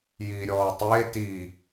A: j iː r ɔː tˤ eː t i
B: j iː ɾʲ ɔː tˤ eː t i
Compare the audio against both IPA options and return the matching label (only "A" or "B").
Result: B